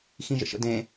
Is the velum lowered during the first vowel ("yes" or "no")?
yes